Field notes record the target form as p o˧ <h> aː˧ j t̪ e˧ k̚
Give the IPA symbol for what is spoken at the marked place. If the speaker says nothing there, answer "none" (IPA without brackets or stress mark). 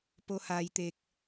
h